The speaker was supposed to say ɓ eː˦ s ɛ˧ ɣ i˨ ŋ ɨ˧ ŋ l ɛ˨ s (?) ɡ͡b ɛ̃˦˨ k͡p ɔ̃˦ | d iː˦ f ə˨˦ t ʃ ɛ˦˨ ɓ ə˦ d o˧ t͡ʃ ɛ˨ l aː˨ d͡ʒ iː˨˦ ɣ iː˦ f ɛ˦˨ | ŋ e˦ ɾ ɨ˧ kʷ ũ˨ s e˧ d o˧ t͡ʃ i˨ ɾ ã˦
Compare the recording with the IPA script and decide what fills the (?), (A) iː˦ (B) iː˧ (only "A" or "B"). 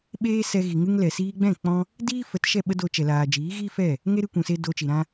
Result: B